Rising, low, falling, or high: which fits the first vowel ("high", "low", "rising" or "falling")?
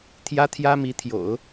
high